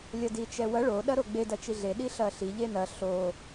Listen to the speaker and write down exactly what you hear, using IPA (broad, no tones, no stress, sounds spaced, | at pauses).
lʲ ɐ d i t͡ʃ ɛ w ɐ ɭ o ɗ ɐ ɾ o ɡ͡b e d ɐ t͡ʃ i ɮ e ɗ i ɬ ɐ ɬ i ʎ e n ɐ ɬ o